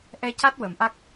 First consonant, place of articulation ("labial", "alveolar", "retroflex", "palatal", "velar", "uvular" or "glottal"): glottal